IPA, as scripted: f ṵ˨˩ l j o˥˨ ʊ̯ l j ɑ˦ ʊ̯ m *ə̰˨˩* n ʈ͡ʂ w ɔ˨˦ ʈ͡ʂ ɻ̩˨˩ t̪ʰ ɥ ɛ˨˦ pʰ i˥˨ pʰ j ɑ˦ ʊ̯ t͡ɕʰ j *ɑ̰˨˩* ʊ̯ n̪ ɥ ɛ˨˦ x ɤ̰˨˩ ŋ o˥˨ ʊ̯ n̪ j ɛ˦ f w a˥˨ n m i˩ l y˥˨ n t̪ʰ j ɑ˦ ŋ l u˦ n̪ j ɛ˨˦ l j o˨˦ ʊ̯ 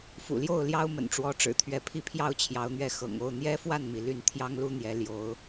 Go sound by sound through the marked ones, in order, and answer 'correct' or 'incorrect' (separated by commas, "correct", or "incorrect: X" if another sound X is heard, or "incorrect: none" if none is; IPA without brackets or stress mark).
correct, incorrect: ɑ˨˦